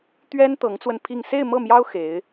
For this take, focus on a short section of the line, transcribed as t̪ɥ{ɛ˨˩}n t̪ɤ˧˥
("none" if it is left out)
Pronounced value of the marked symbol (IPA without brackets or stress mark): ɛ˥